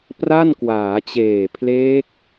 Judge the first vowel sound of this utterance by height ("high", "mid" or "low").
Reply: low